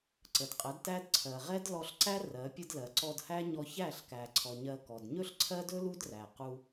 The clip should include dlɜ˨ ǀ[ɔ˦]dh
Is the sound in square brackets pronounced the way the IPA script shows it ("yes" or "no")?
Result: no